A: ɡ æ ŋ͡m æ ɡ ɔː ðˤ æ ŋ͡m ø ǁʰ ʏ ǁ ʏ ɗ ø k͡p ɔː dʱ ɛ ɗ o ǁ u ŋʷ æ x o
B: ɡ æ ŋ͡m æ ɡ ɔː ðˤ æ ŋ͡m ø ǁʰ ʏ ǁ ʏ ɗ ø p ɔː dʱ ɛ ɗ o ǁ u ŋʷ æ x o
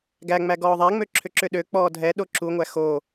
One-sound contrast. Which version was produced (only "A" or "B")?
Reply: A